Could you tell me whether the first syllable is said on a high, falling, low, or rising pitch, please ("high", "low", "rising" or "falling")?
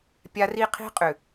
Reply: high